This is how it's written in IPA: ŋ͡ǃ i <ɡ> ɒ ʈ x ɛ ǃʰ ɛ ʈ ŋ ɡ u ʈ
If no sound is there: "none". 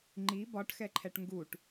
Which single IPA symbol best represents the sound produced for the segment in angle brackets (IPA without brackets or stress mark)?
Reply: b